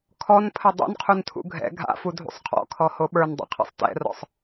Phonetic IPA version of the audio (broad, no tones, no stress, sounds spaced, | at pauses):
kʰ ɔ n pʰ ɘ dˤ ṵ n qʰ u n tʰ ṵ ɡʱ ɛ̰ ɡʱ a̰ f u dʱ ṵ sˤ qʰ ɔ̰ kʰ ɔ h o ɓ ə˞ n dˤ o̰ qʰ ɛ̰ sˤ t ɛ̰ r ɔ̰ sˤ